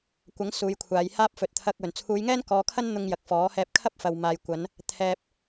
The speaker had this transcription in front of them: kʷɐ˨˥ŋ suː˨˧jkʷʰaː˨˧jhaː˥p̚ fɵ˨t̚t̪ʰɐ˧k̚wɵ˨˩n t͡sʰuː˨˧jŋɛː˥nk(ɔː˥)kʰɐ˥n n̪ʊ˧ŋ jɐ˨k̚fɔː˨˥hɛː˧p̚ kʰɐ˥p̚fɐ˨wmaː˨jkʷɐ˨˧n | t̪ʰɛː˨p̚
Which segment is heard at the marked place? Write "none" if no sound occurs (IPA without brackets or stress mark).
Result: ɔː˨˧